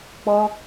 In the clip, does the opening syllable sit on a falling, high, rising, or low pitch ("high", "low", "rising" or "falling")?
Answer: high